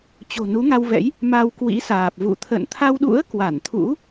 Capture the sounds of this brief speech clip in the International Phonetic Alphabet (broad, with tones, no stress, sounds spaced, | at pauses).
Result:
t͡ɕ o̤˨˩ n u˨˦ ŋ a˧ w v ɛ̰˧˥ j | m a˧ w k w ḭ˧˥ s aː˨˩ p̚ v ṵ˧˨ t̪ʰ ə̰˧˨ n t̪ʰ a˧ w ɗ ṵ˧˥ ə̯ k w a˧˩ n t̪ʰ ṵ˧˥